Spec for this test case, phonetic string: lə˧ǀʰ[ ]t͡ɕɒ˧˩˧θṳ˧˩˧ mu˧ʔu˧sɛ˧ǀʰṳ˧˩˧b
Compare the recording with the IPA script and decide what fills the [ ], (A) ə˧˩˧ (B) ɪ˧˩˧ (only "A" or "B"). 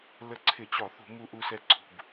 B